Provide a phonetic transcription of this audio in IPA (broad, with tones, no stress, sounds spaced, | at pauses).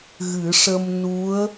ɣ ɨ˨˩˦ ʂ ə˧ m n u˧˥ ə̯